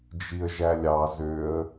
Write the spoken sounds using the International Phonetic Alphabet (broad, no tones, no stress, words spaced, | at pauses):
d͡ʒiə̯ʒælʲɑ zøə̯